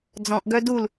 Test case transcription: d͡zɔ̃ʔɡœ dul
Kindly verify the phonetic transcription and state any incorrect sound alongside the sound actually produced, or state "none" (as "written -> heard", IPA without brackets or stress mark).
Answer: none